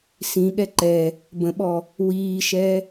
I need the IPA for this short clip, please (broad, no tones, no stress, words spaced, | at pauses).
sĩɠɛ ǃɛ | bə̃ɓɔ | wiːʃɛ